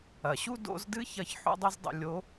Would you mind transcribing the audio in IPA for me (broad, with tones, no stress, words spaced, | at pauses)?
ɐ˩ɕu˥ do̰˧˥zdɨ˥çɐ˧˥ç ħṵ˥dˤu˥zdˤṵ˧ lʲo˧˥